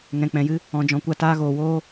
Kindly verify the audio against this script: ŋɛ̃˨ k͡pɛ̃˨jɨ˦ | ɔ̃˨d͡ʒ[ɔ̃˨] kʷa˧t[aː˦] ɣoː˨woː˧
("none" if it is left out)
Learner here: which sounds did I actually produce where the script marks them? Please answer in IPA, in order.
ɔ̃˨, aː˦

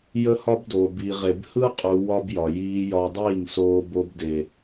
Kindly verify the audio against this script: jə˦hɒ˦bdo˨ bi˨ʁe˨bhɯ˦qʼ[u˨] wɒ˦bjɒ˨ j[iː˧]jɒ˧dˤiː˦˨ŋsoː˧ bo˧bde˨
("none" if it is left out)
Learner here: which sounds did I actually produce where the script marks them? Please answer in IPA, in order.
u˨, iː˧

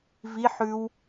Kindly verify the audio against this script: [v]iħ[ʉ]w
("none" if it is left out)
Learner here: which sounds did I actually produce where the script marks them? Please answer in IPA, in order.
v, ʉ

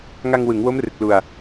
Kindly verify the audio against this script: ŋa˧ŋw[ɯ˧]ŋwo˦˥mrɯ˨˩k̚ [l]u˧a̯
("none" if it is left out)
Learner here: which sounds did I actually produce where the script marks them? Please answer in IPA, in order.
ɯ˩˦, l

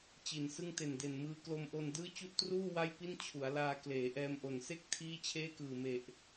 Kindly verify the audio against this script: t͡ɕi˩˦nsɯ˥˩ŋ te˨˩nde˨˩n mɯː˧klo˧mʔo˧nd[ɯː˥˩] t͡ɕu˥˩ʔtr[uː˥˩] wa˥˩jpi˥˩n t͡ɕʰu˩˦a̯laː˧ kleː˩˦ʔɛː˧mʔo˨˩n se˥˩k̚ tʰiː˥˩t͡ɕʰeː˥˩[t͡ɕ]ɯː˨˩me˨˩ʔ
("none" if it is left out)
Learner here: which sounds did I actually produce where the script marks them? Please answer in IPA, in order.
ɯː˥˩, uː˥˩, k

